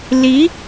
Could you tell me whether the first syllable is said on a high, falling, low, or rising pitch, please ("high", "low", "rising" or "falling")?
rising